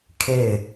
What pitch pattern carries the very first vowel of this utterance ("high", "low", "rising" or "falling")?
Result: falling